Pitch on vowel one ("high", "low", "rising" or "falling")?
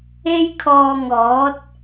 high